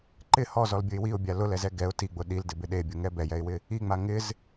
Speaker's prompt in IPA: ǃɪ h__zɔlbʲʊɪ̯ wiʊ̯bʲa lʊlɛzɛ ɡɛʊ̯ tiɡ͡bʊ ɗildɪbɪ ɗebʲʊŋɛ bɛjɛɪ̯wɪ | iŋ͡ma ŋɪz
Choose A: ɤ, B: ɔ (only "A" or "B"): B